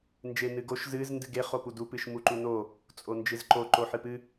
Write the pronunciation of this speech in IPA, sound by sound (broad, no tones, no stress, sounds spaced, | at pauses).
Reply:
n d͡ʒ e n ɨ ɡ o ʃ z ɨ z n d ɨ ɡ e χ o p u d u p ɨ ʃ m u ǃ u n o | t͡sʼ o n d͡ʒ ɨ z ǃ o ǃ o ħ ɨ p ɨ